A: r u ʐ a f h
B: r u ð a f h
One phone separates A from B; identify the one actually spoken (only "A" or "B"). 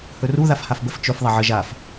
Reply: B